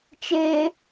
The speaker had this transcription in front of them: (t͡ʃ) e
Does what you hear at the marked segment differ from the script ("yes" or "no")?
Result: no